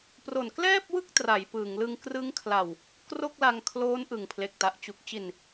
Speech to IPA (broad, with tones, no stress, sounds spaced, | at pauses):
p r o˨˩ n k l ɛː˥˩ p̚ w ɯ˥˩ k̚ t r a˩˦ j p ɯː˩˦ ŋ l ɯ˧ ŋ k r ɯ˦˥ ŋ kʰ l a˨˩ w | k r o˥˩ k̚ l a˧ ŋ kʰ l oː˦˥ n ʔ ɯ˨˩ ŋ pʰ l e˨˩ k̚ t a˨˩ ʔ t͡ɕ u˨˩ k̚ t͡ɕ i˨˩ n